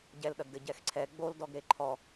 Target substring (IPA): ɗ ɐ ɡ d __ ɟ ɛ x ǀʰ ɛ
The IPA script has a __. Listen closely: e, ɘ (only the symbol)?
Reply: ɘ